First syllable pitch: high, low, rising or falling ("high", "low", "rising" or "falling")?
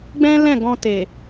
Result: high